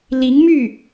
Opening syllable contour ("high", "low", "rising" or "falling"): rising